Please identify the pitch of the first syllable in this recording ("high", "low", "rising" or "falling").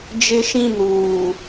high